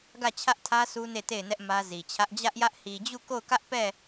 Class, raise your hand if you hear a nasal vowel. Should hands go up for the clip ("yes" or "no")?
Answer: no